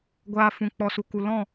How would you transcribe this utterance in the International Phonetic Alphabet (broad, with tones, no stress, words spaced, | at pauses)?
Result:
ɡʷaː˧fũ˨ k͡pɔ˨su˨ku˨ lɔ̃˦˨